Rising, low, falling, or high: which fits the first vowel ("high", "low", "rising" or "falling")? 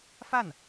falling